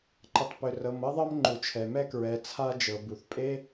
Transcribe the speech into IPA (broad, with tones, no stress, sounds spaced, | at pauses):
ǃ ə˩ tˤ p ʏ˩ r ɤ˩ m ɤ˥ ðˤ ɤ˥ m ŋ͡ǃ u˩ t͡ʃʰ ɛ˩ m ɛ˥ k ɹ ɛ˩ t͡sʰ a˥ d͡ʒ ɤ˩ b u˩ θ pʼ e˥